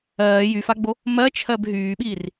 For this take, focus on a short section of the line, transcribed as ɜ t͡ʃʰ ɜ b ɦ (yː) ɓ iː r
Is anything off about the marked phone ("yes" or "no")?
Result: no